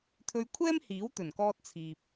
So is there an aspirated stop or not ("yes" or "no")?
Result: yes